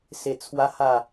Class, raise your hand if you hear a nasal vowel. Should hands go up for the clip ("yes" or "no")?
no